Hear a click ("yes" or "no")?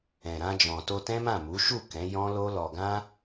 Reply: no